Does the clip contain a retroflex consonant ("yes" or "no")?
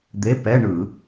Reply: yes